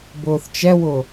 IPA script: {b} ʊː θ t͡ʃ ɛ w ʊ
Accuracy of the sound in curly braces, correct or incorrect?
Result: correct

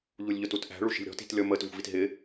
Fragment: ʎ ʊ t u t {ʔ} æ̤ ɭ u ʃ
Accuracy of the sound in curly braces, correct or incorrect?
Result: correct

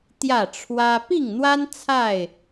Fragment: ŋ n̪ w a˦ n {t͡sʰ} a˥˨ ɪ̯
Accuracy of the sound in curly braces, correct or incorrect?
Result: correct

